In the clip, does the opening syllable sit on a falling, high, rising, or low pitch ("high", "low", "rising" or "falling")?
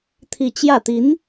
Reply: falling